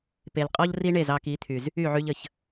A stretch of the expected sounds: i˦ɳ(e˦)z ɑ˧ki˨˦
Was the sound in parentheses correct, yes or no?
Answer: no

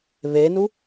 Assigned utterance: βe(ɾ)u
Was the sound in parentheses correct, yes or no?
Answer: no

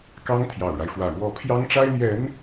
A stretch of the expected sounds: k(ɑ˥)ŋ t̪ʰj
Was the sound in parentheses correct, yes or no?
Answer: yes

